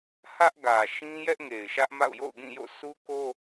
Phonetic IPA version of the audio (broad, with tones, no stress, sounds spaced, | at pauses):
h ä˦ ʔ ɡ ä˨ ʃ ĩ˦ j ɛ˦ ʔ ŋ e˨ ɪ̯ ʃ ä˦ ʔ m a̰˦˨ ʊ̯ j o̰˦˨ ʊ̯ ɡ ĩ˦˨ j o̰˦˨ sʰ u˦ k o˦